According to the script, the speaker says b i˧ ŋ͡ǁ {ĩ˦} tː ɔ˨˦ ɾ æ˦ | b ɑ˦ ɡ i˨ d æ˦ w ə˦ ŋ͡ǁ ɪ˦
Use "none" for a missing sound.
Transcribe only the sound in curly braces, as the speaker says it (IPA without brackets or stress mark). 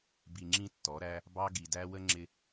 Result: ĩ˦